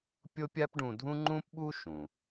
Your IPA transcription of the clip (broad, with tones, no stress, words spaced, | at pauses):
pʲo˥pʲa˥pɖũ˧dʱũ˥ ŋ͡ǃũ˥pɓu˥ ʃũ˩